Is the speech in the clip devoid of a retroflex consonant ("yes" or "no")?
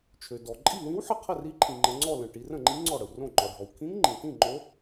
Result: no